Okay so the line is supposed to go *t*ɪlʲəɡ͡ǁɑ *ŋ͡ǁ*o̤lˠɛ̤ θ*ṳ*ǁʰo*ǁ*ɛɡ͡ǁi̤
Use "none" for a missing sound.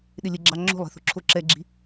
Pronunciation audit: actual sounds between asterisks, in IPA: ɗ, ŋ͡ǁ, o̤, ǁ

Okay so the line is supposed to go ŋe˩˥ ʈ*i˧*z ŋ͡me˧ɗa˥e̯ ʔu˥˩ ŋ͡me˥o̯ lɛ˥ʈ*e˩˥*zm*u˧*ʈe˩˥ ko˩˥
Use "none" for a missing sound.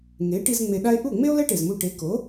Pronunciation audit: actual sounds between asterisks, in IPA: i˧, e˩, u˧

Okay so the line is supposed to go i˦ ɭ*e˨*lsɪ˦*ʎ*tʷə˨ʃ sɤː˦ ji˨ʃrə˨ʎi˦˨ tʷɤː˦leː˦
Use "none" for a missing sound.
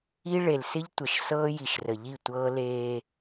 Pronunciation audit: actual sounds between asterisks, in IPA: e˨, ʎ

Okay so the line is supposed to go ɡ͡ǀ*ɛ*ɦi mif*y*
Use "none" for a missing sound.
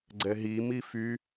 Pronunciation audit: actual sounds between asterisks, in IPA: ɛ, y

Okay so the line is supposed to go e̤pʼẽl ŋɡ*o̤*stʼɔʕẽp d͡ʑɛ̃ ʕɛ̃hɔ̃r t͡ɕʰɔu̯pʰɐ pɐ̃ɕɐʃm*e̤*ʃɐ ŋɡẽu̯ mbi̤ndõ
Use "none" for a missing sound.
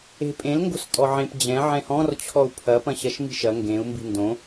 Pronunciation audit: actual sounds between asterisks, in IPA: o̤, i̤

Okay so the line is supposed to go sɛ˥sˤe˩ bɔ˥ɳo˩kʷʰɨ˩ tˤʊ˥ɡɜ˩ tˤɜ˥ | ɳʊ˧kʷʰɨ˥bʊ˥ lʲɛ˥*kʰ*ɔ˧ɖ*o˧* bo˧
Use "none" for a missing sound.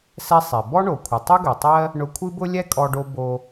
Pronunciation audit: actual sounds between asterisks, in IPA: kʼ, o˧

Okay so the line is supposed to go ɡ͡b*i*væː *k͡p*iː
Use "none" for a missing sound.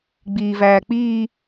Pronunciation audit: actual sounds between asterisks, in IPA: iː, k͡p

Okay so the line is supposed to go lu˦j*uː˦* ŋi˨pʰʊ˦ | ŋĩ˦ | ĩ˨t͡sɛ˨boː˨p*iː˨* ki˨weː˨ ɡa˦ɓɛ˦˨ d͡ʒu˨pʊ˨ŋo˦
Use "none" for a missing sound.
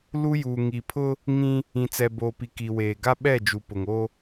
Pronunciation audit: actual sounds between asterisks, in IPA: uː˨, i˨

